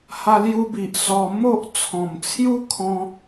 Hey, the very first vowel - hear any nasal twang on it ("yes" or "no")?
no